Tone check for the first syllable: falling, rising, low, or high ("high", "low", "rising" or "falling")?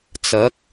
rising